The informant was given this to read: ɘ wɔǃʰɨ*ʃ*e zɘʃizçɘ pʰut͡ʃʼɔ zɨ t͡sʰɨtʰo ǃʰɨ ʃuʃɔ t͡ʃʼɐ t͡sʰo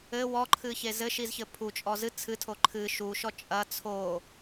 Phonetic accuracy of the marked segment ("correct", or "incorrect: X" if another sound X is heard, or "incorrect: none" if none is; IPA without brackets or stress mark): incorrect: ç